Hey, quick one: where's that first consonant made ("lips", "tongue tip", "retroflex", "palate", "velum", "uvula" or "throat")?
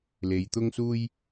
tongue tip